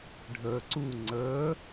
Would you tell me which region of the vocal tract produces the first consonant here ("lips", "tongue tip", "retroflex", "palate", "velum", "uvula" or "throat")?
retroflex